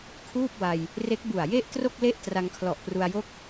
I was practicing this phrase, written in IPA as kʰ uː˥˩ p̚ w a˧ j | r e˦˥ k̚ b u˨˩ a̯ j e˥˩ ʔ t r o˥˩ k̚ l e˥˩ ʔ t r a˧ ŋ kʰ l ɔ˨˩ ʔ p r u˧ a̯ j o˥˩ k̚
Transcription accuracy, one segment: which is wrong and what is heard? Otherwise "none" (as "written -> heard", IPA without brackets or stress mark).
none